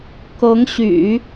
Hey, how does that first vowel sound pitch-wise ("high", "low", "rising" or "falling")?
rising